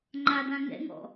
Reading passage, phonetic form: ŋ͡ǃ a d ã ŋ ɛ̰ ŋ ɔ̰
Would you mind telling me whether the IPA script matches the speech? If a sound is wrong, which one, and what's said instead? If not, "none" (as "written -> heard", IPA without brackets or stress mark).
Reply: none